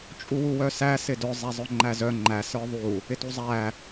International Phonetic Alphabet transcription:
t͡ʃʼ u w u w œ s æ s ɪ d œ zˤ æ zˤ œ ŋ͡ǃ æ z œ ŋ͡ǃ æ s ə˞ ðˤ u | ɪ t u zˤ æ

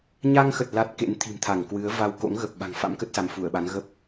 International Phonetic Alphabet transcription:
ɲ a˧ ŋ x ə˨˩ t̚ l a˦˥ t̚ k ḛ˧˥ n t̪ʰ i̤˨˩ m t̪ʰ a˧˩ ŋ k w ɨ˨˦ ə̯ v a˧ w k o̰˧˥ ŋ ɣ ə˨˩ p̚ ɓ a̤˨˩ ŋ f a̰˧˥ m k ə˦˥ t̚ s a˨˦ m f u˧˩ ə̯ ɓ a˨˦ n ɣ ə˦˥ p̚

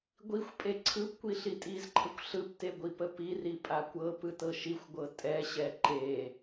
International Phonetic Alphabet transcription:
ɡʷ i xʷ pʼ e ǀʰ ɯ p kʷ i ɬ i tʼ i z ǃʰ ə kʷ ɬ ɯ p t e ɡʷ i p ə p i r i pʼ a kʷ ɤ p ɯ t ɤ ʃ i xʷ ɡʷ ɤ tʼ ɛ ɕ ɛ ǃ e

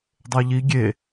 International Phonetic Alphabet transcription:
dˤ e ʎ i ɡʲ e

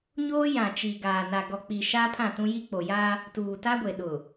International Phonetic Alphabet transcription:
ɲ oː˦ j ã˨ t͡ʃ i˨ ɡ aː˨ n a˨ ɡ ɔ˨ k͡p i˨ ʃ aː˦ pʰ ã˦˨ t ũ˦ j i˦ k͡p o˨ j a˦ | t uː˨ t a˦ ɡʷ e˨ ɗ ʊ˨

